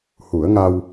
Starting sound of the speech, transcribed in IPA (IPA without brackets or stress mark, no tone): h